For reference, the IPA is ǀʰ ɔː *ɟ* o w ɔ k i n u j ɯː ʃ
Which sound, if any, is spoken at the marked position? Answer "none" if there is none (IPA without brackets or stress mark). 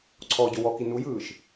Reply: ɟ